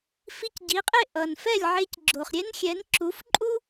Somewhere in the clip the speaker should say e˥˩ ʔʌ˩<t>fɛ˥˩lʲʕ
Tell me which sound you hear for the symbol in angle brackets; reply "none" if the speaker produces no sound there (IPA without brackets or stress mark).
n